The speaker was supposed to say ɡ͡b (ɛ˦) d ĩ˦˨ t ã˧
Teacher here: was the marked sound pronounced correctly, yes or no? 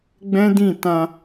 no